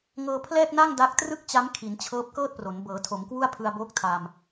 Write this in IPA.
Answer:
ŋ ɤː˧ pʰ l ɛː˥˩ k̚ n a˥˩ ŋ d a˥˩ k̚ t r ɯ˥˩ k̚ t͡ɕ a˦˥ m kʰ i˩˦ n t͡ɕʰ ɤː˦˥ p̚ k ɤː˥˩ t̚ p r o˩˦ n b ɤː˩˦ tʰ o˩˦ m k w u˥˩ a̯ pʰ ɯ˧ a̯ b oː˦˥ k̚ tʰ a˧ m

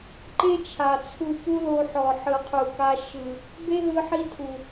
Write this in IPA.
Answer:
ǃ e˦ t͡ʃʰ a˨ t͡sʰ u˧ p u˦ l o˧ ħ ɔ˨ ħ ɯ˨ qʰ u˨ k a˧ ʃ ɯ˨ | b e˦ ɦ ɯ˧ ħ i˧ tʰ u˨

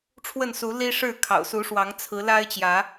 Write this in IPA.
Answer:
ʈ͡ʂʰ w ə˥˨ n s u˨˦ l i˦ ʂ ɻ̩˥˨ kʰ ɑ̰˨˩ ʊ̯ s u˨˦ ʂ w ɑ˨˦ ŋ t͡sʰ ɹ̩˨˦ l a˦ ɪ̯ t͡ɕ j ä˨˦

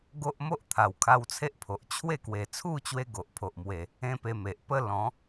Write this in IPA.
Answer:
ɡ o˦ ʔ m o˦ ʔ t̪ʰ a˨˩ w kʰ a˧ w t͡sʰ e˦ ʔ pʰ o˨ ʔ t͡ɕʰ w e˥˧ k w e˨˩ t͡sʰ u˥˧ t͡ɕ w e˧ ɡ o˨ ʔ pʰ o˨ ʔ m w e˨˩ | ẽ˦ p e˧ m e˨ ʔ p ə˦ l ɔ̃˨˦

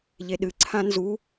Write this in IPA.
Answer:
ʎ e ɗ ɨ ǀʰ ã n z u

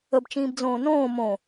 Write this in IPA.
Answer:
ə b t͡ʃ ĩː b d͡z õː n õː m õ

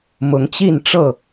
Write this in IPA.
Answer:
m ʊ˨˦ ŋ t͡ɕ i˥˨ n ʈ͡ʂ ɤ˥˨

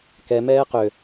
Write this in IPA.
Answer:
k ɛ m ɛː q ø

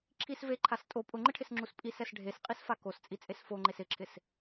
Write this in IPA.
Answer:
ǁʰ i s v e ǃʰ a s tʼ o pʼ ʊ ŋ͡ǃ ɪ ʈʰ ɪ s ŋ͡ǁ u s pʼ i s ɛ s ɖʱ e s qʼ i s f a k o s t͡sʼ i t͡sʼ e s f o ŋ͡ǃ e s ɪ ǁʰ ɪ s

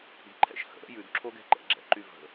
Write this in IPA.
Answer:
i̤ ǃʰ ɛ̰ ʃ h ə̰ ɾ ə̰ j ʉ d ǁʰ o ɡ ɛ̤ ǃ ɛ̰ ɡ͡ǁ ɛ̰ ǃ y v ə̤

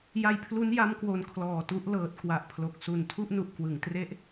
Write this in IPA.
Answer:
j a˧ j pʰ l u˦˥ n j a˦˥ m k w o˨˩ n kʰ l ɔː˨˩ t u˦˥ ʔ l ɤː˨˩ t̚ k w a˨˩ ʔ pʰ l o˨˩ k̚ s u˨˩ n tʰ u˥˩ ʔ n u˨˩ ʔ k w ɯ˩˦ ŋ t r e˦˥ ʔ

